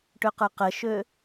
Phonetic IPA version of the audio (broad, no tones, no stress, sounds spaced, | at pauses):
ʈ ø q ə˞ q ə ʃ ø